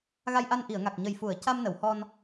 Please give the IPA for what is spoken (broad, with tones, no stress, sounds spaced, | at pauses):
ɣ a˧ j ʔ a˧ n ʔ i˨˩˨ ə̯ ŋ a˨˩ k̚ ɲ ə˨˩ j f u˨˩˨ ə̯ c a˧ m n ə˨˩˨ w h ɔ˧ n